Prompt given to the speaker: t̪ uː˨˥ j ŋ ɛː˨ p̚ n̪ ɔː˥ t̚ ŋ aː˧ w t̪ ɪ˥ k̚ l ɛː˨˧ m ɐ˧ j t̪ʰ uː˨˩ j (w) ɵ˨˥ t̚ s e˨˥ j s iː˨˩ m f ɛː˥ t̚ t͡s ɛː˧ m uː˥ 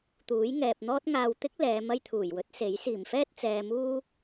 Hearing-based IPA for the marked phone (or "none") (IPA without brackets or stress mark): w